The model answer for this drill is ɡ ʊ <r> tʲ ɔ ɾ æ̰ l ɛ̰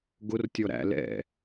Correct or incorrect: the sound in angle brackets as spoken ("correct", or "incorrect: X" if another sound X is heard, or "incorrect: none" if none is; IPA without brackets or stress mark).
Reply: correct